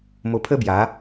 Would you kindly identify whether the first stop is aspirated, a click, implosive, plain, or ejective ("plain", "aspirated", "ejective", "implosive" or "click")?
aspirated